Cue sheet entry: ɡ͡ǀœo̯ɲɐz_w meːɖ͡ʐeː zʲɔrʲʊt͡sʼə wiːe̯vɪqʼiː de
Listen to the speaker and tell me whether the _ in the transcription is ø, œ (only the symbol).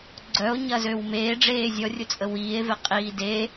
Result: ø